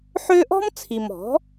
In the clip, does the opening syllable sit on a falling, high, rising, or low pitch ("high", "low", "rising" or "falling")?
high